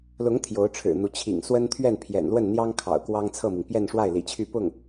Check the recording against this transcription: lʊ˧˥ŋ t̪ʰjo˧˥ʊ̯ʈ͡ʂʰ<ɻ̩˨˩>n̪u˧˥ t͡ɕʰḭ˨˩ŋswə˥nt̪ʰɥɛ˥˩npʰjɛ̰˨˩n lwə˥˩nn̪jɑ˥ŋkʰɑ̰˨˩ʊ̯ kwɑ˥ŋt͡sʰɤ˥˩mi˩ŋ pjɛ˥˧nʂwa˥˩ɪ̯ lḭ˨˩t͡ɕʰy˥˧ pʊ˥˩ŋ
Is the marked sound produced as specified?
yes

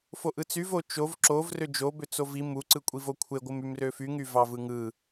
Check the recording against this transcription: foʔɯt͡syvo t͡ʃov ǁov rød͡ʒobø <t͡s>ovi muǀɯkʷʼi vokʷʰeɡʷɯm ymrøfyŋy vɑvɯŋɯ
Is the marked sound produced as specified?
yes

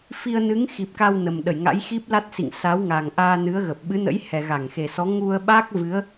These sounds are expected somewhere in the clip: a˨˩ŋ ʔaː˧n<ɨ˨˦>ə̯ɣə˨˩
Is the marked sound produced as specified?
yes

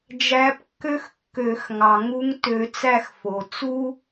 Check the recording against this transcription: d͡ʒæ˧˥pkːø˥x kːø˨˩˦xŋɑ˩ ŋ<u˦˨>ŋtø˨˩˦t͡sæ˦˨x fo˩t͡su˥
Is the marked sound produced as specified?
no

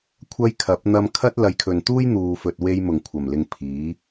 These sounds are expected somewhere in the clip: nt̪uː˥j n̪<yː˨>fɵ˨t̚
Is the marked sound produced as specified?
no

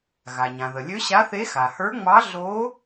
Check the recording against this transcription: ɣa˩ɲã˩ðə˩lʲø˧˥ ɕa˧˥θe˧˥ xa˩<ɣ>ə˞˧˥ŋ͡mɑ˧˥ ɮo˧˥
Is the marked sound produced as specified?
no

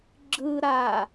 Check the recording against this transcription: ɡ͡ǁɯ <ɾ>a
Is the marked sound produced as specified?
yes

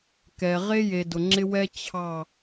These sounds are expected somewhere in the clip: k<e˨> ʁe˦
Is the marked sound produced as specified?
no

